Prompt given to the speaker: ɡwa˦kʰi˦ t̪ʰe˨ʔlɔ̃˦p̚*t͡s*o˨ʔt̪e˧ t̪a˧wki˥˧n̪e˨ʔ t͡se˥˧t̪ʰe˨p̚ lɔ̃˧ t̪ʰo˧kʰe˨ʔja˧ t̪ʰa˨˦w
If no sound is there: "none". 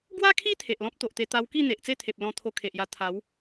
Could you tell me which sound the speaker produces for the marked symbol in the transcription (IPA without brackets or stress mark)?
t̪